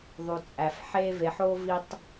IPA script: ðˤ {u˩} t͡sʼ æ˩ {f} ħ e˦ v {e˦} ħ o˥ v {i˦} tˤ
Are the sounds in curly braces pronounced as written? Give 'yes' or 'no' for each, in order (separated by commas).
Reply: yes, yes, no, yes